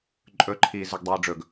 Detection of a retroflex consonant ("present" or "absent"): present